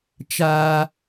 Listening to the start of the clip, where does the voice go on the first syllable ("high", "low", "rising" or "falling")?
high